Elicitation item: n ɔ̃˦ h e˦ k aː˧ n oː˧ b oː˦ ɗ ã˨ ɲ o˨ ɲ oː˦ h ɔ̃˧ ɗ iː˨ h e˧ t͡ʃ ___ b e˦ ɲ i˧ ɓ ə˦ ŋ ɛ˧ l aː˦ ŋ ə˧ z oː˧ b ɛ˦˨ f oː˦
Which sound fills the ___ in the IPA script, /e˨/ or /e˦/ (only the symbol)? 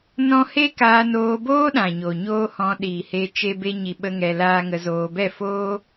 e˦